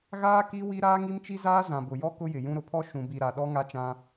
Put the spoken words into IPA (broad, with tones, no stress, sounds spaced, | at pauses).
ɣ aː˦ k i˦ w i˦ ɾ aː˦ ŋ i˦ m t͡ʃ i˦ z aː˦ z ã˨ b ʊ˨ j ɔ˦ k ʊ˦ j ɪ˨ j ũ˦ ɾ ʊ˨ pʰ ɔ˦ ʃ ũ˨ b i˨ ɾ a˨ ɗ ɔ˦ ŋ a˦ t͡ʃ ã˦